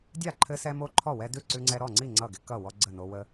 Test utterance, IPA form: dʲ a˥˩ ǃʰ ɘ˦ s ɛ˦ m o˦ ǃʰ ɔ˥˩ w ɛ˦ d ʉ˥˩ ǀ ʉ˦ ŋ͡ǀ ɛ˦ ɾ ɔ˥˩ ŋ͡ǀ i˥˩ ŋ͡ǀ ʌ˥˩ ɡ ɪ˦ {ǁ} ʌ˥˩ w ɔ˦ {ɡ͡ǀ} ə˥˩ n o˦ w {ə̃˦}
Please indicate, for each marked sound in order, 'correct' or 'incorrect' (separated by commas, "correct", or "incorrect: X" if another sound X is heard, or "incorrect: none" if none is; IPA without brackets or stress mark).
incorrect: k, correct, incorrect: ə˦